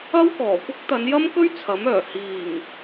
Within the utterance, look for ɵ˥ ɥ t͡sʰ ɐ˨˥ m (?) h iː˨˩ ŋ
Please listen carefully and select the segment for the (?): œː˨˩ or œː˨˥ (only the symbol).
œː˨˩